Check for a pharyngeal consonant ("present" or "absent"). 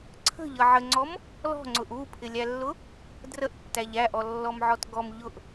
present